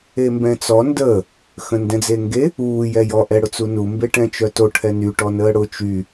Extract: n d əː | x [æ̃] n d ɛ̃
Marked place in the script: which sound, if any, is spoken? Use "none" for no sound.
ə̃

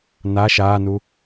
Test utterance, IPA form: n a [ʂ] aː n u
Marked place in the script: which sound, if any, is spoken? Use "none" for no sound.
ʃ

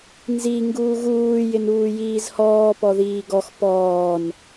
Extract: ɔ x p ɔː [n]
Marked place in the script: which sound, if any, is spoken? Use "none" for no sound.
n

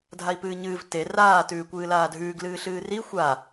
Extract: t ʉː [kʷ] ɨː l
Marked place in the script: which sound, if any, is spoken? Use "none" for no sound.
kʷ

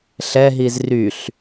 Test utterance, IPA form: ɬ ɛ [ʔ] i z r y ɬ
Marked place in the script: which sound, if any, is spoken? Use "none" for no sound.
ɦ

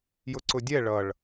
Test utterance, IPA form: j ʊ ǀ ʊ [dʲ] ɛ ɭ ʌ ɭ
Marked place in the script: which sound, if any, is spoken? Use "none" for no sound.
dʲ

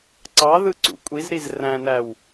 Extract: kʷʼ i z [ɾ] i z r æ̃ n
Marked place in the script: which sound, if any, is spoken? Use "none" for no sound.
ɾ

